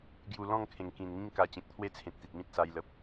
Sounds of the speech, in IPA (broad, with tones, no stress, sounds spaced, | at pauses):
ɡ j u˨˩ l ɔ̃˥˧ ŋ kʰ ẽ˨˩ ŋ k ĩ˨˩ n ŋ ĩ˦ ŋ k a˧ t͡ɕ ẽ˨ k̚ t̪ʰ w e˥˧ t͡sʰ ẽ˨ t̚ t̪ i˨ t̚ m ĩ˦ t̚ s a˧ j l ə˨ p̚